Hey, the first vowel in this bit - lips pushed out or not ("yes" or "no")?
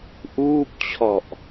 yes